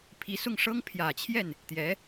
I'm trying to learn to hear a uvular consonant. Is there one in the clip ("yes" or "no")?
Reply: no